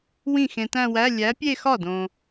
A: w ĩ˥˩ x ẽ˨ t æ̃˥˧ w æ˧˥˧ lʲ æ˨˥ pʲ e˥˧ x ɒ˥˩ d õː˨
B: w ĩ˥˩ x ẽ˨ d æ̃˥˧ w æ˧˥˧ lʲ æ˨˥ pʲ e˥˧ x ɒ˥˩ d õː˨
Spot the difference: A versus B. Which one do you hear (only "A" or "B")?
A